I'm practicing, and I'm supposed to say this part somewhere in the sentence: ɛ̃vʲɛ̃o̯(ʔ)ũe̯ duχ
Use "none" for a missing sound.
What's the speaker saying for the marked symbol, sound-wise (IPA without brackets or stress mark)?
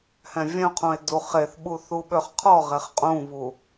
qʰ